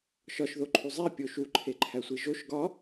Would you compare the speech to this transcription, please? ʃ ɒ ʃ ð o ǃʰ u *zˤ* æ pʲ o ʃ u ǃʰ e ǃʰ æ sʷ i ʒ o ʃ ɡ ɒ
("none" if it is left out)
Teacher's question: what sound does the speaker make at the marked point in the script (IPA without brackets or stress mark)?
zˤ